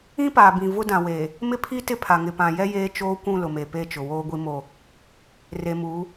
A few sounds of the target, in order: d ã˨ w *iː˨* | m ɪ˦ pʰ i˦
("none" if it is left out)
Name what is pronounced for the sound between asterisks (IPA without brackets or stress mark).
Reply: eː˨